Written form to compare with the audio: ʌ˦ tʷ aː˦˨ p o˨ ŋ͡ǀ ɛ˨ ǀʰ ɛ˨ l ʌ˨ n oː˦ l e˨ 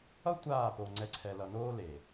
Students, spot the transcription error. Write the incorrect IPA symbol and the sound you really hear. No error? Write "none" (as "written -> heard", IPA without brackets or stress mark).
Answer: none